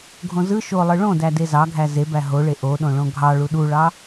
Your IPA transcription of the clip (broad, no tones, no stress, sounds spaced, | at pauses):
ɡʱ õ z ɯ ʃ o lˠ ɯ ɭ õ d æ d e z ɑ ɡʱ æ z e b æ ɦ o ɭ e ʔ o ɗ õ ɭ õ ɡʱ ɑ ɭ u ɗ u ɭ ɑ